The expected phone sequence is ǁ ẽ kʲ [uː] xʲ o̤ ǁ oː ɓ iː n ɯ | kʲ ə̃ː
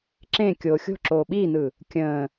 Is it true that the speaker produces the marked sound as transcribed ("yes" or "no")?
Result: no